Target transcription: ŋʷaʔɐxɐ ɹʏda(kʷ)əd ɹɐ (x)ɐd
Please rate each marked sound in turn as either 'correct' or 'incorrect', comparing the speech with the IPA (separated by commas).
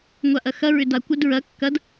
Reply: correct, incorrect